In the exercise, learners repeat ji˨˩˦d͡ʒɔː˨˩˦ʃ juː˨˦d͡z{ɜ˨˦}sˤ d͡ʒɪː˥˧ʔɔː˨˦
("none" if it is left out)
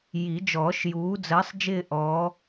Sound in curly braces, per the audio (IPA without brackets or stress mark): ɜ˨˦